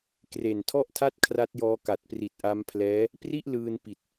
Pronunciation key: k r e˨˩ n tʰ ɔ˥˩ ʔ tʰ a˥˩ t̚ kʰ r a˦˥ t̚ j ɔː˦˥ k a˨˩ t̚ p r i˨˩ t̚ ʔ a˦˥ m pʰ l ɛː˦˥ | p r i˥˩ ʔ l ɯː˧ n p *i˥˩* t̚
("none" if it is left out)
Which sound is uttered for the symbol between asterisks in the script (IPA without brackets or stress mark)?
i˨˩